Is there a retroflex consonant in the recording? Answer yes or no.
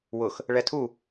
yes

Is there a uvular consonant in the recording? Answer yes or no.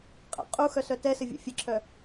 yes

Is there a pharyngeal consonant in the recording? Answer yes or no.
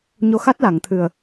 no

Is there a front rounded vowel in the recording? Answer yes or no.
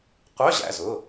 yes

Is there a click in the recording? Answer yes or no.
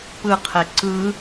yes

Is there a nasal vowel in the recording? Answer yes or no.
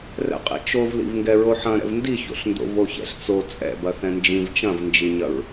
yes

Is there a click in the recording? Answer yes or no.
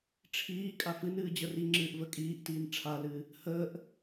yes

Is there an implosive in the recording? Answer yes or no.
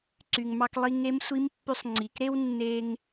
no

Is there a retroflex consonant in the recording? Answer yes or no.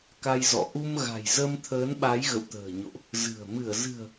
no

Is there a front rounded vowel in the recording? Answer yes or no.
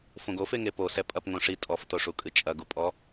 no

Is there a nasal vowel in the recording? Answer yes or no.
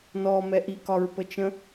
yes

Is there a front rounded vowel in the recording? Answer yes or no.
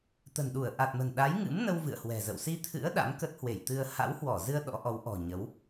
no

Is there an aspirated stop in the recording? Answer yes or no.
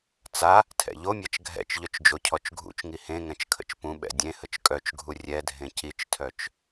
yes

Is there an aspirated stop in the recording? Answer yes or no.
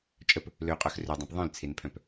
yes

